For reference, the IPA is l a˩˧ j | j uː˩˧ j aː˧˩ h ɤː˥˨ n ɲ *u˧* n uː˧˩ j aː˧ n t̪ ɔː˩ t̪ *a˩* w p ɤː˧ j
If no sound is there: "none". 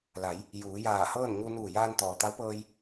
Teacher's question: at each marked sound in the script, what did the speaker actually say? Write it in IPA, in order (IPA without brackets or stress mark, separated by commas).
u˧, a˧˥